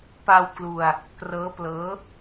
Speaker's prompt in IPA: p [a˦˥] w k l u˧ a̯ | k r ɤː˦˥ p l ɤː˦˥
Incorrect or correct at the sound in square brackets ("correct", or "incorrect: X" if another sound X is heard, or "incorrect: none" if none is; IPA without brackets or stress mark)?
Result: incorrect: a˧